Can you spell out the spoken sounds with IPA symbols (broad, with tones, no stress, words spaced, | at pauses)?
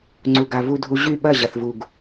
ŋ͡ǀu˨ɡa˨ vu˧dʱu˧ ʑy˦˨ ɓɐ˦˨ ʑɐ˨θvu˨ɡ